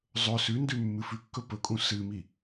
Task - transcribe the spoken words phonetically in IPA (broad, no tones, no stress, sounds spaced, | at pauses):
zˤ ɵ s ʉ n d ʉ mː ɨ f ʉ kː ɵ p ɵ kʼ ũ s ɨ m i